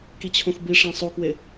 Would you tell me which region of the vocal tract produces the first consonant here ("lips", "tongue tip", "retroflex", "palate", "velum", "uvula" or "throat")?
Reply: velum